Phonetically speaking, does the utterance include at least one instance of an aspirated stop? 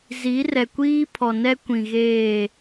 yes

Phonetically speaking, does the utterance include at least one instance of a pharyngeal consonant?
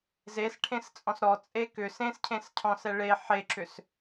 yes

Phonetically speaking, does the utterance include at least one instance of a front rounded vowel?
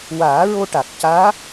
no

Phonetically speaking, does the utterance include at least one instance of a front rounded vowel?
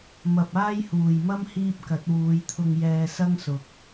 no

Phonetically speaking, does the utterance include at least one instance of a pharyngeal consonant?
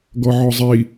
yes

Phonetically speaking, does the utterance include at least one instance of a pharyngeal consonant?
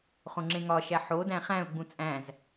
yes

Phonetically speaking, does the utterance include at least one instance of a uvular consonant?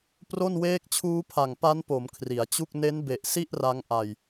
no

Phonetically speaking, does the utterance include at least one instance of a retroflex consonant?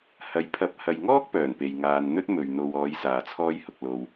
no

